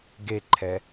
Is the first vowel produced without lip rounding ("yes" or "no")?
yes